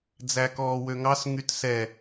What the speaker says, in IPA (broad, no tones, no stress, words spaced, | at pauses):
d͡zækɔːwøŋɑs ŋytsɛ